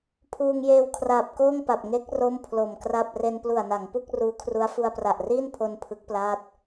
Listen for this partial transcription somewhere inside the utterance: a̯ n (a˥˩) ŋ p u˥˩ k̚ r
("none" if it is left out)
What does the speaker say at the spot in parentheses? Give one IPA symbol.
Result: a˩˦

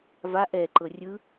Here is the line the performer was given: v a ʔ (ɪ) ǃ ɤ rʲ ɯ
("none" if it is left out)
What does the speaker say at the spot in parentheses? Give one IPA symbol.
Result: ɛ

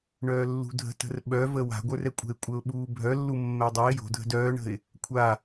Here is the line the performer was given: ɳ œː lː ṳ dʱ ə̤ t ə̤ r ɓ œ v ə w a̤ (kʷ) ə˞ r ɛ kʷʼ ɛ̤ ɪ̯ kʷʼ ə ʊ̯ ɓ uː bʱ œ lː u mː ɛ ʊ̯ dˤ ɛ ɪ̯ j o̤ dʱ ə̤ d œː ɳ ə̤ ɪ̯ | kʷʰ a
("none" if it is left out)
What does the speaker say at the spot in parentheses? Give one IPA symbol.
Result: ɡʷ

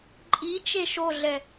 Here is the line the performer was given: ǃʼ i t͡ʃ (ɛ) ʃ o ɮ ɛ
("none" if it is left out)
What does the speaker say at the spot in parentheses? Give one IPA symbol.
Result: e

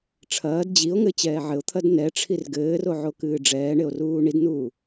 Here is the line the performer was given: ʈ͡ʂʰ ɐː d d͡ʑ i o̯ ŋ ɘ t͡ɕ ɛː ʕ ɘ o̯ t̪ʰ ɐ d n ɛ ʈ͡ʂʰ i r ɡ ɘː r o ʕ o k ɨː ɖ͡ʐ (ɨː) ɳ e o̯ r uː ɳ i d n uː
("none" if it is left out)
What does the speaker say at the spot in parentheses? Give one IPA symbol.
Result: ɛː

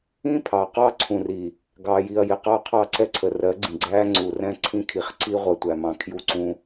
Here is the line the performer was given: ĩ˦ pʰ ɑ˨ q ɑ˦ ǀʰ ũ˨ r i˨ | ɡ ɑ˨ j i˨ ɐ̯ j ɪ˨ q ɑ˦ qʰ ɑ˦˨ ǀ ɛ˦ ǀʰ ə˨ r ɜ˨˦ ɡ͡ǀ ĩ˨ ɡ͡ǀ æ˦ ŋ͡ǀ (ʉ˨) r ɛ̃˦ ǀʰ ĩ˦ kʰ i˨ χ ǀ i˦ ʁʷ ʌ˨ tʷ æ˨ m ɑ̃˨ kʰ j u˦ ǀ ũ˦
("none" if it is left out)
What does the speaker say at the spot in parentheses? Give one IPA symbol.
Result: u˨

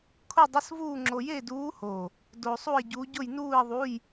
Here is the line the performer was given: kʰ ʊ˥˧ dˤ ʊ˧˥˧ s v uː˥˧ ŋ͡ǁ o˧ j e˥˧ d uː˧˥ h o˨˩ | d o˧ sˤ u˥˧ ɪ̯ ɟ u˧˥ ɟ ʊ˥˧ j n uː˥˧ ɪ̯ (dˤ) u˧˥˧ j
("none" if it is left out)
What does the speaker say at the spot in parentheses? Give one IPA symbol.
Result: ðˤ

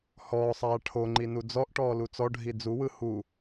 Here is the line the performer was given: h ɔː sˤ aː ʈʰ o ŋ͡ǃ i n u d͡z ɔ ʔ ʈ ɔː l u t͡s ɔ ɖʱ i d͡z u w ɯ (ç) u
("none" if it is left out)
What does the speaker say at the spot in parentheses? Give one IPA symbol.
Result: h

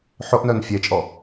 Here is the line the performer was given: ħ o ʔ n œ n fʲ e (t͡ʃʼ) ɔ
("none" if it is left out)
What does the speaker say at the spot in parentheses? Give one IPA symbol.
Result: t͡ʃʼ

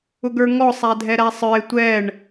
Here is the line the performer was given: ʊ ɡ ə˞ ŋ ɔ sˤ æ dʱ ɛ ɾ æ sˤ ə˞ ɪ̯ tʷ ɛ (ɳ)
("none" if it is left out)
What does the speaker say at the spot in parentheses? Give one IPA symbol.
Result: ɳ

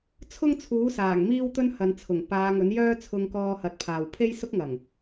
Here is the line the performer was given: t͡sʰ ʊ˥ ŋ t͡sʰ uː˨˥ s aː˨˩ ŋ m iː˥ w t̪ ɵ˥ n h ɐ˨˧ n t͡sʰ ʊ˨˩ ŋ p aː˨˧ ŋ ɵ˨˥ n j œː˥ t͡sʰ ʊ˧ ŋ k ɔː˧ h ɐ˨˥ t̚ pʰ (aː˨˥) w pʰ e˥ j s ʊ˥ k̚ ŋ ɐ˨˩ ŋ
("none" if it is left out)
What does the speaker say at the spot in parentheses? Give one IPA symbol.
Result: aː˨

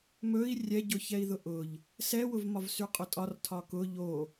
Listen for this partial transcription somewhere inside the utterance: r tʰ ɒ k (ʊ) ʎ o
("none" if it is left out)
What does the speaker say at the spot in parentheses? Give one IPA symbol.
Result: ʊ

